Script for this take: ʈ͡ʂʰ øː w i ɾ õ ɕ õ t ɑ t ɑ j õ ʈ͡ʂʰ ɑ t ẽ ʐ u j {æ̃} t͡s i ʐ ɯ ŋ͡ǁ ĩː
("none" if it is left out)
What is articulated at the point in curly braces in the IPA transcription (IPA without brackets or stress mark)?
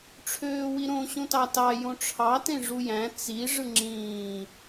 æ̃